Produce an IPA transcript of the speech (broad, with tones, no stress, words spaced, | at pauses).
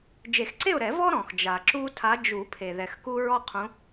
d͡ʒe˨˩˦xǀe˥˨ʊ̯ɾɛ˨˩˦ vɔ˦ ɾɔ̃˩xd͡ʒa˩ ǁu˦tʰa˨˦ d͡ʒu˨˩˦pʰe˩ ðɛ˩xku˦ ɹɔ˦qʰũ˨˦